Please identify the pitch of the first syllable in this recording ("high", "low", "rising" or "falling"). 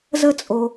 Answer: high